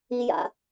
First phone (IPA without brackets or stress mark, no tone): i